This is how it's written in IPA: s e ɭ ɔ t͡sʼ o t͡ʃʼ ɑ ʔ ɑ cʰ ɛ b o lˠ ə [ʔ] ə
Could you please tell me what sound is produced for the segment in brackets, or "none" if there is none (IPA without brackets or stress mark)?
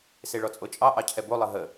ɦ